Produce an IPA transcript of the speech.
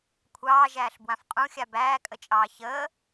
kʷʰɑːʒæːɬbwãf qʼũxʲa bæːkʼət͡ʃʼɑː çəː

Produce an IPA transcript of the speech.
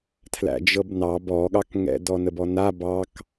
tʰlæ̰d͡ʒɤbnɑb ɔɠɑkŋɛ̰ dɔnəbɔna bɑk

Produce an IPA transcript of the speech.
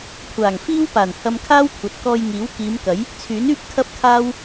kʷʰaː˨˩ŋfiː˥wpaː˨˩n hɐ˧mkʰaː˥wkʷʰɐ˨t̚ kɔː˧jŋiː˨˥w kiː˨˧mkɐ˨˥j | t͡sʰyː˨˥nyː˥p̚ kʰɐ˥p̚kʰaː˥w

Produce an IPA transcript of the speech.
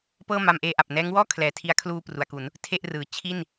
pɤː˥˩ma˧mʔeː˧ ʔa˨˩p̚nɛː˦˥ŋ wɔː˥˩ kʰlɛː˩˦tʰi˦˥a̯ kʰluː˧ pru˩˦a̯ku˩˦n | tʰe˥˩ʔrɯː˩˦ t͡ɕʰi˥˩n

